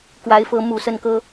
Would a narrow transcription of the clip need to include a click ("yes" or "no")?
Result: no